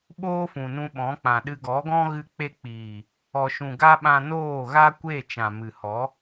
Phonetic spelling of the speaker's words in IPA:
ɓ oː˦ f ũ˨ n ũ˧ ɓ ɔ̃˨˦ k͡p ã˨ ɗ ɨ˧ ɡ ɔ˨˦ ɡ ɔ̃˦ ɣ ɨ˧ k͡p e˧ k͡p iː˨ | ɔ˨ ʃ ũ˨ ɡ a˧ ɓ ã˧ n oː˦˨ ɣ a˦ kʷ e˦˨ t͡ʃ ã˨ m ɨ˨ h ɔ˨˦

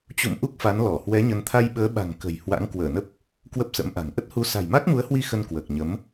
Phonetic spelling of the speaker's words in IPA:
t͡ɕ ṵ˧˨ m ʔ u˦˥ k̚ f a˨˦ n l ɔ˧˩ h w ɛ˨˦ ɲ ə˨˦ n t̪ʰ a˧ j ɓ əː˨˦ ɓ a̤˨˩ ŋ k ə̤˨˩ j h w a̰˧˥ ŋ k w əː˧˩ n ə˦˥ p̚ | k w ə˦˥ p̚ s ə̰˧˥ m ʔ a̤˨˩ ŋ ʔ ə˦˥ t̚ h u˨˦ s a̤˨˩ j m a˦˥ k̚ m u˨˦ ə̯ h w i˧ x ə˧ n k w əː˨˩ k̚ ɲ ə˨˦ m

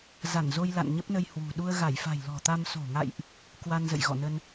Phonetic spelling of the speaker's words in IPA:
z a˧˩ n z o˧ j l a̰˧˨ n ɲ ə˦˥ p̚ n ə˧ j h w ṳ˨˩ ɗ u˧ ə̯ ɣ a˧˩ j f a̤˨˩ j l ɔ̤˨˩ t̪ a˧ m s o̤˨˩ ŋ a̰˧˨ j ʔ | k w a˧ n z ə̰˧˨ j ɣ ɔ̰˧˨ n ə˧ n

